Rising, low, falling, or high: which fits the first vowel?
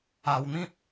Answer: low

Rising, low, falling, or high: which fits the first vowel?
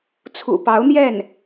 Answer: low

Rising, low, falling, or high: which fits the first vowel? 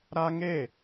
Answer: high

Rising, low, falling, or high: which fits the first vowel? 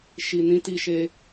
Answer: low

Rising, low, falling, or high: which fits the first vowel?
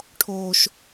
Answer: low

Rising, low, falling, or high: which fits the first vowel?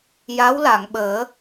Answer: rising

